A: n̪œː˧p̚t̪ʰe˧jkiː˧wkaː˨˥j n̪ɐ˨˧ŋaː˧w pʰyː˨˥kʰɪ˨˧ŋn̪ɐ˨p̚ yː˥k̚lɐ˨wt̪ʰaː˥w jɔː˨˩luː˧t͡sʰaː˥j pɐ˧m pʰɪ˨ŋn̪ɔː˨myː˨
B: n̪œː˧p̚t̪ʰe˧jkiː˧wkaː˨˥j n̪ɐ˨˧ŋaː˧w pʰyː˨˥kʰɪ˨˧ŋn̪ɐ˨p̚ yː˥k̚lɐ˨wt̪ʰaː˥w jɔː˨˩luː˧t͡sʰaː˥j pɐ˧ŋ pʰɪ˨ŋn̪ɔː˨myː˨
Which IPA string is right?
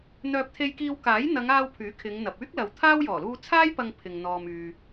B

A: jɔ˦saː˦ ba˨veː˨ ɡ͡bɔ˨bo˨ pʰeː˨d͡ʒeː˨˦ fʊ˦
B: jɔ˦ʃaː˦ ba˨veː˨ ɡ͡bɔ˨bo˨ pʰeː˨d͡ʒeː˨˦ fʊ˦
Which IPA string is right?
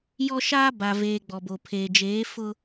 B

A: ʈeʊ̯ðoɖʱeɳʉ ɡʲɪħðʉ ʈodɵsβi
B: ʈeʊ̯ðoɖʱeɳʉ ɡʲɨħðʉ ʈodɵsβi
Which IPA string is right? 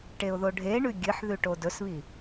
B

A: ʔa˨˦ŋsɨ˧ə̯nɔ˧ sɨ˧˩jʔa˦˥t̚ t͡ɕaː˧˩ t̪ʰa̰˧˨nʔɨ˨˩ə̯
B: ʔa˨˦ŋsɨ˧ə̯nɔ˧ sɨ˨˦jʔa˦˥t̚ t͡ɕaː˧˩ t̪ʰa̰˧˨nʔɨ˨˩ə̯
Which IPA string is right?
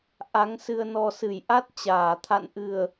A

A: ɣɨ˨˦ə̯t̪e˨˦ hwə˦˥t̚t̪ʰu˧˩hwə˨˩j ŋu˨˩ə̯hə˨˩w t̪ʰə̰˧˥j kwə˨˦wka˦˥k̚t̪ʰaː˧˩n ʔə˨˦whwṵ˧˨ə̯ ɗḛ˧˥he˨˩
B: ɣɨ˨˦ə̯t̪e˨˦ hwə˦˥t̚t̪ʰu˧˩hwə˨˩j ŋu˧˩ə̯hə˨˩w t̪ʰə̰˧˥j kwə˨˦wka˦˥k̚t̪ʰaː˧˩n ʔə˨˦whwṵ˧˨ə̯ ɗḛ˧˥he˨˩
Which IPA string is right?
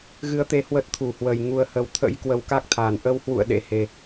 A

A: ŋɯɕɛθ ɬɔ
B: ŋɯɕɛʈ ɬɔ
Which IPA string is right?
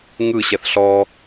A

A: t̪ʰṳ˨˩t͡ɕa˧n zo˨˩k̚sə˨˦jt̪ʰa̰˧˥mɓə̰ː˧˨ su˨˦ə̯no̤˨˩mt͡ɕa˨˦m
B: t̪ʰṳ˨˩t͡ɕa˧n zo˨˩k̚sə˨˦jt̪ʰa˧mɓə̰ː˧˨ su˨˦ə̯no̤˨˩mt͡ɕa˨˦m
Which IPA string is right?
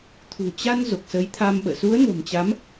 B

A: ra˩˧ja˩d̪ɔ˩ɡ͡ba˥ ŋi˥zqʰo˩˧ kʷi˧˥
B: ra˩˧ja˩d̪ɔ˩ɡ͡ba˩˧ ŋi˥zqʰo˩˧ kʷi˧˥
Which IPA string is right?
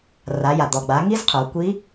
B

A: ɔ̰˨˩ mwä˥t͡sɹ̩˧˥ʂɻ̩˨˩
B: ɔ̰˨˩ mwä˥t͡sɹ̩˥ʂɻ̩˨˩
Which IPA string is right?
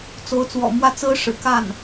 B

